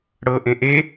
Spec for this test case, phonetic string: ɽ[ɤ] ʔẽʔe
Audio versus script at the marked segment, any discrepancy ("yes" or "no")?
no